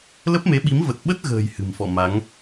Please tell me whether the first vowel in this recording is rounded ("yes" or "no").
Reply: no